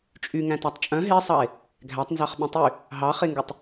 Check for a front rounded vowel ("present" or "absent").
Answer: present